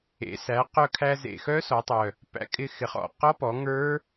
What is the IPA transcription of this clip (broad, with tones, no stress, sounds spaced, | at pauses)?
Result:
ḛ˩˧ s æ˩˧ q œ˧ kʰ æ˧ z ḛ˨˩ x œ˦˥ s ɔ˩˧ tˤ œ˨˩ | p æ̰˧ kʼ ɪ˧ x ɪ˩˧ χ ɔ̰˨˩ q ɔ˦˥ p ɔ˩˧ ŋ ə˞˦˥